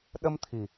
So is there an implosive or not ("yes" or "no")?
yes